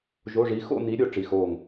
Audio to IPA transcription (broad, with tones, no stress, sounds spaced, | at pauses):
ʒ o˧˥˧ ʐ i˧˥ x o̰˥˧ n i˧˥ ɾʲ o˧˥ ʈ͡ʂ i˧˥˧ x oː˥˧ ŋ